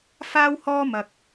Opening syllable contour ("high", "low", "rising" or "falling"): high